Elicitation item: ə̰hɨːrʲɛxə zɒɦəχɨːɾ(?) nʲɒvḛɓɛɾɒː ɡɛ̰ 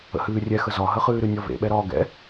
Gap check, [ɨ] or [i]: ɨ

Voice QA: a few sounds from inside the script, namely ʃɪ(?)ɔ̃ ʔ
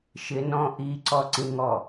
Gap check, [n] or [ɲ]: n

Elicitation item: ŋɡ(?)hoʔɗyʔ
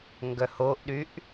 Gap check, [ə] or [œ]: œ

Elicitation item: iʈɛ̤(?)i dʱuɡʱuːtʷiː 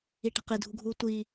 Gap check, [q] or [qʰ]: q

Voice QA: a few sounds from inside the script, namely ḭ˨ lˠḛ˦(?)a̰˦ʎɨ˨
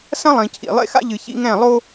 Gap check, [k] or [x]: x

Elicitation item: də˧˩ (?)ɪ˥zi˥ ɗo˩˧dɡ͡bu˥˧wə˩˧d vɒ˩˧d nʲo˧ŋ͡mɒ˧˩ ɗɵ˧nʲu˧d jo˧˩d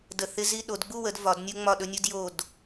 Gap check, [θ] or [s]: θ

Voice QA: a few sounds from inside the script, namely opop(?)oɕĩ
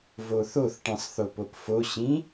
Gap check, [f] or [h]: f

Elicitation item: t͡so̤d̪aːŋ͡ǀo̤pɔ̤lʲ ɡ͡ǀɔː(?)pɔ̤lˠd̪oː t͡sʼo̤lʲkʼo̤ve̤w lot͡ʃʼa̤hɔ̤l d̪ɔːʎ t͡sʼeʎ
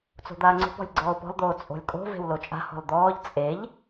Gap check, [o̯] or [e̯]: o̯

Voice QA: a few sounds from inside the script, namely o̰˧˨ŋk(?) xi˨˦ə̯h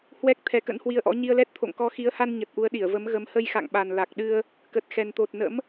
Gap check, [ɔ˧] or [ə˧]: ɔ˧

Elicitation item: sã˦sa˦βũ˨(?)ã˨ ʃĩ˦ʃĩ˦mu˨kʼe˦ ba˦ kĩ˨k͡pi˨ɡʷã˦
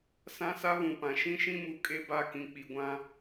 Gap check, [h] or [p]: p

